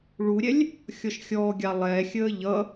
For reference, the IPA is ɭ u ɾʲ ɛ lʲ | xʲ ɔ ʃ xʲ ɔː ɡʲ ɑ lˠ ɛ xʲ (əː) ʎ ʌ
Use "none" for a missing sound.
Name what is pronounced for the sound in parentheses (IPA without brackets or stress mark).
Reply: əː